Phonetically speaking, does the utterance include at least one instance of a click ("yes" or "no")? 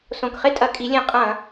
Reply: no